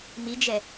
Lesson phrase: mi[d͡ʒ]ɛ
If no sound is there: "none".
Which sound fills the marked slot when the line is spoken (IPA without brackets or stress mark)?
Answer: d͡ʒ